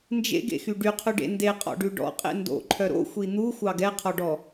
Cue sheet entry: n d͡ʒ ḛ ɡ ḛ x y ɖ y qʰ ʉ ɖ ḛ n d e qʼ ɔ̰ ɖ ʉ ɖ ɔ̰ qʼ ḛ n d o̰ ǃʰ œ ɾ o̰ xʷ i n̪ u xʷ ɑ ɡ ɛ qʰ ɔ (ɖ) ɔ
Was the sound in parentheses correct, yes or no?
yes